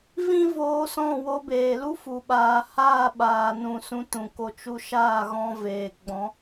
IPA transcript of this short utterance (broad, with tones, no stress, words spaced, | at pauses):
vĩ˦voː˧sɔ̃˦˨ wo˧beː˨lu˦ fu˨ ɓaː˨haː˦˨ɓaː˨nũ˨ sũ˧tũ˨ko˧ t͡ʃu˧ʃaː˦˨ɣɔ̃˧ veː˨ɡ͡bɔ̃˨˦